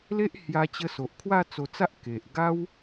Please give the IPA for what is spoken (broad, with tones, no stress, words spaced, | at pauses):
le˦ʔ hja˧t͡ɕə˧ so˨ʔkʰwa˥˧ t͡so˧t͡sa˦ʔ ke˨ʔɡa˦w